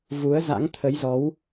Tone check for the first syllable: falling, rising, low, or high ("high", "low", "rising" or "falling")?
rising